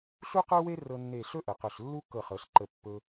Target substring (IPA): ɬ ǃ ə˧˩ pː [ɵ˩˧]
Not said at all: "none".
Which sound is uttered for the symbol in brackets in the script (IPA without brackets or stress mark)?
ɵ˧